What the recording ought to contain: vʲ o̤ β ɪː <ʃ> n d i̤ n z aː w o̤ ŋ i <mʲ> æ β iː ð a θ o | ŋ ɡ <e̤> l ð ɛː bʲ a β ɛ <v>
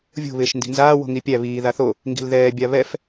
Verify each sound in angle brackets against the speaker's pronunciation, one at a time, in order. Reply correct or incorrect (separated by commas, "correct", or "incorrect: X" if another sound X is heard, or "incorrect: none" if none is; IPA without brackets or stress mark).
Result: correct, incorrect: pʲ, incorrect: i̤, incorrect: f